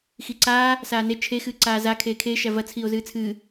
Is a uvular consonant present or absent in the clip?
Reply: absent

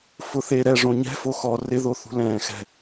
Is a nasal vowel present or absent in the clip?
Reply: present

